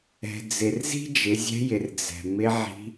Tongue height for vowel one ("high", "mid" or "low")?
mid